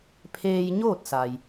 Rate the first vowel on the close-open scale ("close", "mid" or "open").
mid